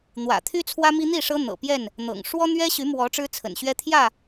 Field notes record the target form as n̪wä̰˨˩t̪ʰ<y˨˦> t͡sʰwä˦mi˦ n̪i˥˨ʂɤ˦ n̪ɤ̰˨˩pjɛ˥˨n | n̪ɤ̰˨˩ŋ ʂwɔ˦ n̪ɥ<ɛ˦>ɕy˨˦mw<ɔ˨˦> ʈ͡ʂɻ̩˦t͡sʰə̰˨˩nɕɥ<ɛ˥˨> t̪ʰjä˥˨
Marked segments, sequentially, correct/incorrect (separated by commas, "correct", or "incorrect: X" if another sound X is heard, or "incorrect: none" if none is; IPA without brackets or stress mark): incorrect: y˦, correct, correct, incorrect: ɛ˦